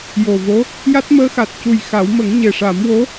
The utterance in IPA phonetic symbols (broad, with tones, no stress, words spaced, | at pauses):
jo˨˩vo˧˥ | ja˦˥t̚məː˧˥xa˨˩t̚cu˨˩j xa˨˩˦w mə˨˩˦ŋɲe˨˩ʂa˨˩˦mwo˧˥